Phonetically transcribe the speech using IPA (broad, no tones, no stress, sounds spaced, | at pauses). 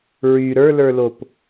ɹ y ɾ ə˞ l ə˞ l o p